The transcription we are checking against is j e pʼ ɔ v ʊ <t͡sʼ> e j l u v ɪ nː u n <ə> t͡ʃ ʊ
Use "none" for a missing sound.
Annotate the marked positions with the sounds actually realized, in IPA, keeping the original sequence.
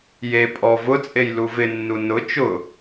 t͡sʼ, ʊ

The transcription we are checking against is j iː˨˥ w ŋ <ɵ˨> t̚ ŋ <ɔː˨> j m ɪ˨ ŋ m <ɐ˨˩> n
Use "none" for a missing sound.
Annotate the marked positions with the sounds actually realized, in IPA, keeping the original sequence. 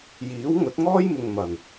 ɵ˨˥, ɔː˥, ɐ˨˩

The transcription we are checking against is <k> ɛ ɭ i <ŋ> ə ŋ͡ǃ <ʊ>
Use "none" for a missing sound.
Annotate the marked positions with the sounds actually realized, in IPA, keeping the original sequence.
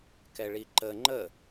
k, ǃ, ə

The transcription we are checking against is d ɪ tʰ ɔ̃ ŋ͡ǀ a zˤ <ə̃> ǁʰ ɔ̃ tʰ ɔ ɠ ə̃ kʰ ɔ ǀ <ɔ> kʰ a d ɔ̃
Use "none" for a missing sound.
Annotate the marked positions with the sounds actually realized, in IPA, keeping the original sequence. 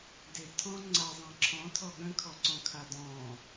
ã, ɔ̃

